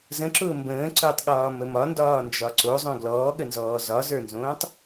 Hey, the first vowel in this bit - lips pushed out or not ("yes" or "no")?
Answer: no